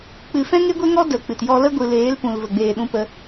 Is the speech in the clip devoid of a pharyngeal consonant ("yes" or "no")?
yes